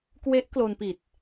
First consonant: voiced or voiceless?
voiceless